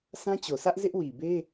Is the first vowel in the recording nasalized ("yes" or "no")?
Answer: yes